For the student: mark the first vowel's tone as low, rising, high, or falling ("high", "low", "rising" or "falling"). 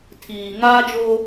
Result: low